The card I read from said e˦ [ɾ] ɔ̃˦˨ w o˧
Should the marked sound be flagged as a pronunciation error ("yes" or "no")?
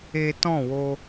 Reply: yes